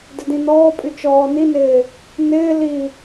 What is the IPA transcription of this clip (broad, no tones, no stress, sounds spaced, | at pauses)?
d ɪ d ĩ n ɔː pʼ y t͡ʃ ɔː n i n ɪː | n ɪː l i